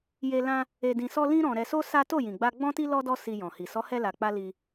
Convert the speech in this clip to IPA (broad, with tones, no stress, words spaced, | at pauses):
je˧ lã˦ | e˧dĩ˧sɔ˦ lĩ˦ɾɔ̃˧ ɾɛ˧so˦ sa˦ to˦˨jĩ˨ɡ͡ba˧ ɡ͡bɔ̃˦ti˦ lɔ˦dɔ˦ si˧jɔ̃˨hi˨ sɔ˨˦hɛ˧la˨k͡pa˧ li˧